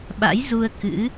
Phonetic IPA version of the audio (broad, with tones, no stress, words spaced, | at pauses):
ɓa̰˧˥jzu˧ə̯ kɨ̰˧˥